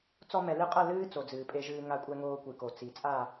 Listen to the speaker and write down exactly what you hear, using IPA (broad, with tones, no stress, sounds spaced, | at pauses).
t͡s ɔ˧ m ɛ˨ l ɨ˧ qʼ ɐ˦˨ l ɨː˦ t͡s o˨ d͡z ɨː˨ pʼ e˧ ʒ ɨː˧ ŋ a˧ kʷʼ ɛ˧ ŋ oː˧ kʷ ɨ˨ k o˨ t͡s i˨ t͡sʼ a˦˨